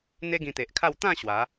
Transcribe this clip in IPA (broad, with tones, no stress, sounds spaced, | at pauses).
n̪ e˦ ɡ ĩ˧ t̪ e˨ ʔ kʰ a˥˧ w t̪ ã˥˧ ɕ w a˨˦